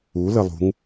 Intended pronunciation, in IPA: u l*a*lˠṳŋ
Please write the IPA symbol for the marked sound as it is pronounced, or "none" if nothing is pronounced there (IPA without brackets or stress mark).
ə